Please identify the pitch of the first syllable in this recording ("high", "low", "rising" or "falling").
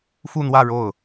falling